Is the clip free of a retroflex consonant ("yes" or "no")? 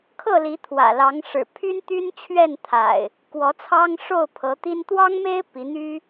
no